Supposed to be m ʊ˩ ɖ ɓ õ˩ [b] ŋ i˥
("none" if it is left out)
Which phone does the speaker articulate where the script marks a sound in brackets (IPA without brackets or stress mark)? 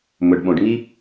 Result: ɖ